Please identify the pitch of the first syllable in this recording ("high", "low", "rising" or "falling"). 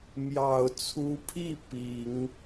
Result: low